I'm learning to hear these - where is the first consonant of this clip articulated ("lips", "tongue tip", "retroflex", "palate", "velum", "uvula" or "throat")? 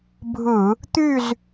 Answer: lips